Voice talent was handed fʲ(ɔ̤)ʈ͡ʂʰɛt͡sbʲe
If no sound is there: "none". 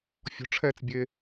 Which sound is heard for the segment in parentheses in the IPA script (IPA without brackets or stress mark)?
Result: ɔ̤